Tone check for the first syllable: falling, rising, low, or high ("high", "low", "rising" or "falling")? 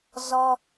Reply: high